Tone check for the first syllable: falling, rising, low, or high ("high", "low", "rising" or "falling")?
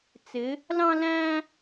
rising